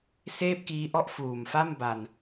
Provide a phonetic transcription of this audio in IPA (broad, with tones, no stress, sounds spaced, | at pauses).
s eː˥˩ p̚ k iː˦˥ ʔ ɔ˥˩ ʔ f uː˨˩ m f a˥˩ m b a˧ n